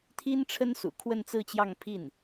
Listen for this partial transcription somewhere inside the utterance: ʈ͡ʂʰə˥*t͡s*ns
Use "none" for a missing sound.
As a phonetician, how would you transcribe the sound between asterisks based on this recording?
none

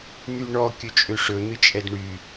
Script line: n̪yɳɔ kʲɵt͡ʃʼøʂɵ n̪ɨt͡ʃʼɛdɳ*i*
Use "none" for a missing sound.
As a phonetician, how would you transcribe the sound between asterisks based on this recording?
y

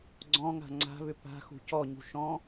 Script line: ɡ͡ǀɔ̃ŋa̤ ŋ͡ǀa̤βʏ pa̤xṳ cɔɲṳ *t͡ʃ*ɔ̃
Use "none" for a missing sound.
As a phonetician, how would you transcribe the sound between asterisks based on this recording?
ʃ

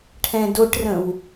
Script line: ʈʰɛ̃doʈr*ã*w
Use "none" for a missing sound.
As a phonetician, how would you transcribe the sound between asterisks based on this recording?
ə̃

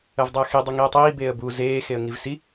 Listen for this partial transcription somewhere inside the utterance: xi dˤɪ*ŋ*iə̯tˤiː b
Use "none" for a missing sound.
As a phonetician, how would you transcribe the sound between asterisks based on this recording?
ŋ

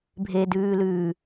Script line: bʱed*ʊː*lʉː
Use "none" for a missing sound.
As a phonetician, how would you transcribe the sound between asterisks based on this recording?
ʉː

